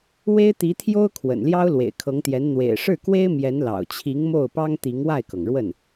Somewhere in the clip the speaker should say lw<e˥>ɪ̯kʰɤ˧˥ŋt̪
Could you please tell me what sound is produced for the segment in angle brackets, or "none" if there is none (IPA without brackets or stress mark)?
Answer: ḛ˨˩